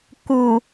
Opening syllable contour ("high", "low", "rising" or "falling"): low